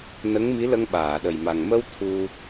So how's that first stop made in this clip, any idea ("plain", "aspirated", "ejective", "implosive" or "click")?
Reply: implosive